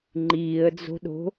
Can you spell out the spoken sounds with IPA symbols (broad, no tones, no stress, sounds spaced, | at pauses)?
ŋ͡ǃ iː ə̯ d͡z o̤ ɗ o̤